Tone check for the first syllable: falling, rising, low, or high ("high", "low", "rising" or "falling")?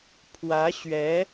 rising